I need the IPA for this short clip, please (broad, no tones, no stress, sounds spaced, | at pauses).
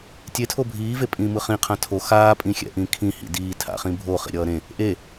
tʲ e tʰ o bʱ iː v e pʼ ĩː m ɯ χ ĩ qʰ ã tʰ o x aː pʼ ĩ xʲ ɛ̰ ʔ ĩ kʰ ĩ h ḭ d iː tʰ a̰ χ ĩ bʱ o χ ḭ ɾʲ ʌː ɾ ẽ | ʔ e